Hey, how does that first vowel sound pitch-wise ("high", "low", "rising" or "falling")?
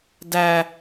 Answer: high